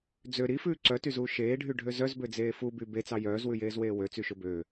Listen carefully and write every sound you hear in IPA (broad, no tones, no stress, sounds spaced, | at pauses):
d͡z ø ɾ i f ʉː ǀ œ t y z uː ʃ eː ɖʱ y ɖʱ ø z œ z b ø d͡z eː f u b y b e t͡s ɑ j œː z w ʉ j eː z w eː w ø t͡s y ʃ ɵ b ø